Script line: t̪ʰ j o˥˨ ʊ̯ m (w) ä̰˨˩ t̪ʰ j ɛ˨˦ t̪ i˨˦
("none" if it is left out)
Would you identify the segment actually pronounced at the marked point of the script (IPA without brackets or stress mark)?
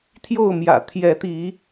j